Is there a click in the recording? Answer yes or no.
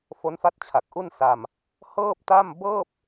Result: no